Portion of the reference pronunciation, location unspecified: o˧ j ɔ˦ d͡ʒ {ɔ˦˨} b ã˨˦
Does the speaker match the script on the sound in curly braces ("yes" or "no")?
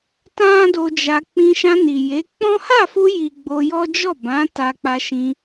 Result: yes